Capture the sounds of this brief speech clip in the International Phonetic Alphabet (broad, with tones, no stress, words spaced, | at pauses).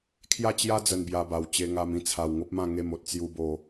kʰja˥˧ t͡ɕja˦ d͡zə˧nbja˧ba˨˩w t͡ɕe˧ŋa˧m ĩ˧t͡sʰa˨˩wŋo˦p̚mã˥˧ ŋe˥˧mo˦t̚ t͡sju˦bo˥˧